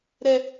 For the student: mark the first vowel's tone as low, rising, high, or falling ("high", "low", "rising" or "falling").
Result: low